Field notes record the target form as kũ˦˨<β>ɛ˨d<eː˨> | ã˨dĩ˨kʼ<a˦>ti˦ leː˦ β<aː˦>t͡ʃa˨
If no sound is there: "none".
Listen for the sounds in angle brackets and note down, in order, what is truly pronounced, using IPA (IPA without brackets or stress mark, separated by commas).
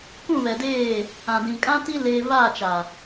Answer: β, eː˦˨, ã˦, aː˦˨